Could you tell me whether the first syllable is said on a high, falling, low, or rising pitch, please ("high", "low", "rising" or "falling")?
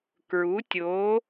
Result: rising